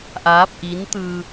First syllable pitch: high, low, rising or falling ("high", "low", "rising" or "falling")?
rising